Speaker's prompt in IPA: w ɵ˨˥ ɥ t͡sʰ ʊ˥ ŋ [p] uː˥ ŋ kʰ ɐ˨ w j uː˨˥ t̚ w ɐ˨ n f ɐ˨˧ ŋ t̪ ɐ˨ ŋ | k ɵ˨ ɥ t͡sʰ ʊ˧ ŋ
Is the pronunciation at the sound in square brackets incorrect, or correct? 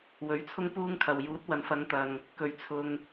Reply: correct